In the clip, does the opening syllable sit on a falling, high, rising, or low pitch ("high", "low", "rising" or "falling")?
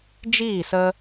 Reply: falling